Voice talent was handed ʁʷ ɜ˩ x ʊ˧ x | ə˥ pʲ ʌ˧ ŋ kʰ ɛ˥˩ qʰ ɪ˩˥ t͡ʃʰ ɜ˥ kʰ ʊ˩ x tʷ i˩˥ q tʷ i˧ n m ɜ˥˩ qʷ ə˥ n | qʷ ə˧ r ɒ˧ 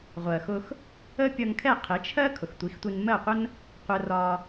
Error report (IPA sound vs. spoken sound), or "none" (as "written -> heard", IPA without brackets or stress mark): q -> x